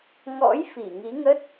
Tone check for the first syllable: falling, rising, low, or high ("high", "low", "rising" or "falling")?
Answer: rising